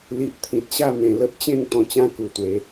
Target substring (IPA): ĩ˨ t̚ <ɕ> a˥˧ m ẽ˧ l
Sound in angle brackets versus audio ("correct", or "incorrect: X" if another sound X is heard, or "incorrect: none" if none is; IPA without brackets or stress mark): correct